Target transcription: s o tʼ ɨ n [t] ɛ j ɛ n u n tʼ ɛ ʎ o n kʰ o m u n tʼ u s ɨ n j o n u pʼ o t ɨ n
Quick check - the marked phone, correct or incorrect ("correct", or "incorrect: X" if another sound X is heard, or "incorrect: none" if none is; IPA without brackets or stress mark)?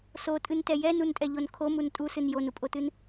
correct